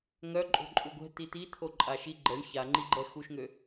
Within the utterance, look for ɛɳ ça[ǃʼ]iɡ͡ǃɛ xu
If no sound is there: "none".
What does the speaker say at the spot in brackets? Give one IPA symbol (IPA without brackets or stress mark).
ŋ͡ǃ